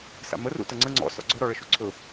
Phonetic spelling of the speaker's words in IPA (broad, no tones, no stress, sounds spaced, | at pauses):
s a̰ m ə r ṵ t ə ŋ͡ǀ ə ŋ͡ǀ ɔ̰ s ɔ̰ ɡ͡ǀ ɵ ɾ ɔ ɭ ə ʃ u ǀʰ ɵ